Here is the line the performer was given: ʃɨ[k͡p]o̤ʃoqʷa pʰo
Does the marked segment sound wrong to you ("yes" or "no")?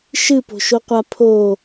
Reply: yes